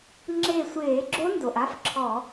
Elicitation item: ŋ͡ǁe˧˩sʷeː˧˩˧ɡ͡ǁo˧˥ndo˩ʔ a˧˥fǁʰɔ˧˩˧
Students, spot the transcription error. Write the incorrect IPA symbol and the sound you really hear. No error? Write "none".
none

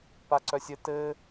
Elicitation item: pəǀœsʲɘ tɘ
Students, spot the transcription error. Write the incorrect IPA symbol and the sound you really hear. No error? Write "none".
ə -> a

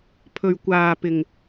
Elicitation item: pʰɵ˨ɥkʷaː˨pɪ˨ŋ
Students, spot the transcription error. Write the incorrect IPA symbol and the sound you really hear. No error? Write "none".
none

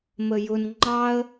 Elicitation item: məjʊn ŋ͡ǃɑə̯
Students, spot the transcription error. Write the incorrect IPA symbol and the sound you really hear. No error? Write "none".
none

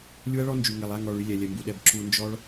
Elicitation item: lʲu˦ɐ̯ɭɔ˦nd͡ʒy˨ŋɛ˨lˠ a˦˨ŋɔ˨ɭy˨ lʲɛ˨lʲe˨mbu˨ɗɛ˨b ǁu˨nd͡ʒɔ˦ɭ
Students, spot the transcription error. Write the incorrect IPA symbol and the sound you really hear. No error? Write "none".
e˨ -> ɛ˨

